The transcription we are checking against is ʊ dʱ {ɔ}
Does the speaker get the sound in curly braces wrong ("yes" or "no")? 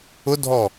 no